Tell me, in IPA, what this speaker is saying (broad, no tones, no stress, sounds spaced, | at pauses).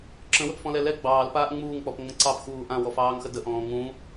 ǁ ə̃ w ə p f ɔ̃ l ɛ l ɛ ɡ͡b ɑː l p aː ʔ ŋ͡m uː ŋ k͡p ɔ p ŋ͡m ə̃ ǀ ɑ p x uː ʔ ã w ɔ f ɑː ŋ x ə d ə ʔ ɔ̃ː ŋ ũ